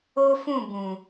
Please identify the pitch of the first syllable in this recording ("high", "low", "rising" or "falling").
high